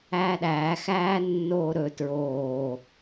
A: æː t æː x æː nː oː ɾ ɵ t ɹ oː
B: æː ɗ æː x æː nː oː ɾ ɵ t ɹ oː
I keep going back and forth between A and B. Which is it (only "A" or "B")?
B